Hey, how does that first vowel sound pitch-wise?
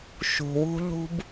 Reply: low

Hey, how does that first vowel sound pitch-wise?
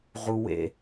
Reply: high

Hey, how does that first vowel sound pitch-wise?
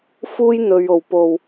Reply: high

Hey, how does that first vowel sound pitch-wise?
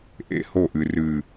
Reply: high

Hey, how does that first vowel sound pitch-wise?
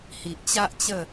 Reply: low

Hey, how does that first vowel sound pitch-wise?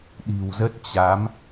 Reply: low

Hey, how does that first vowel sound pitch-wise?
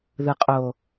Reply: low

